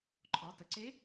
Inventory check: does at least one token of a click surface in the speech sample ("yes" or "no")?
yes